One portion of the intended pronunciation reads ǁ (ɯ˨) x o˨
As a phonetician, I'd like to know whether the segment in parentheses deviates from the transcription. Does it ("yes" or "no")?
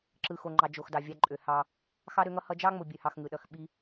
no